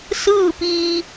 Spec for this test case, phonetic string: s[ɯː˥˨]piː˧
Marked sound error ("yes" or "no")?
no